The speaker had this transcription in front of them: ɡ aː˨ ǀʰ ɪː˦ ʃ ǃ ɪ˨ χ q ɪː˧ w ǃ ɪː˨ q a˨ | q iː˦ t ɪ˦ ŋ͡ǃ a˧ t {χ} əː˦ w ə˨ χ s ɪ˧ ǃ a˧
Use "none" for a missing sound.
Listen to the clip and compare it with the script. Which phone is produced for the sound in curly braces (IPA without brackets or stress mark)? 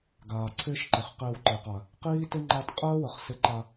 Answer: qʼ